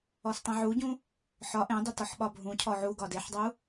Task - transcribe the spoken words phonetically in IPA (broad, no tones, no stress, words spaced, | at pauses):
ɔstˤẽʕuɟũ | ħɒ ʔẽdˤʏtɒħ ɓɒbʱũ cʰɔʕu ɡɒdeħdˤu